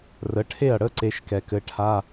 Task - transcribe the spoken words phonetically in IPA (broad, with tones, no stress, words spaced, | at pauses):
rə˩˥ʈʰe˥˩ɐ̯ɽə˧˥˧ ǀe˧˥ʃkɛ˧kɘ˧˥ ʈʰa˧˥˧